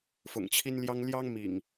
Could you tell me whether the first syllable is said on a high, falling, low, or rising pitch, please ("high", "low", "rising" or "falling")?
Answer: low